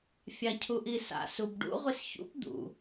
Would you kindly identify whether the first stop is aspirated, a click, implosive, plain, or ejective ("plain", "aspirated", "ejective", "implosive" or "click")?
aspirated